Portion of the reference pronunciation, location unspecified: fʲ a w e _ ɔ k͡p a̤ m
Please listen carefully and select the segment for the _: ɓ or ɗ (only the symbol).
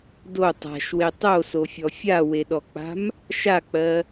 ɗ